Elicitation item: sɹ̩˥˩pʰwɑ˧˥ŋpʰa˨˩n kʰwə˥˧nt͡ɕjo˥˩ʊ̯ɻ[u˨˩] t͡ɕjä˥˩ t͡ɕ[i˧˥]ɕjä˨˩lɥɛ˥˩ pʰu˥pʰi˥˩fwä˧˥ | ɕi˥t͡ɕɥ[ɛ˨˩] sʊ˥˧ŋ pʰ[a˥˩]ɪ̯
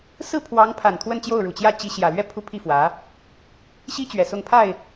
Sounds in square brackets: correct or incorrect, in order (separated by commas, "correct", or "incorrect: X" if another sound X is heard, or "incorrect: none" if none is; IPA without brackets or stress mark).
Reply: correct, correct, correct, correct